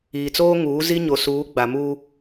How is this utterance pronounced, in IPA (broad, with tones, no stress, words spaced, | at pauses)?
iː˨t͡soː˦ŋuː˨˦ zi˦ɲo˨suː˨˦ ɡ͡ba˨muː˦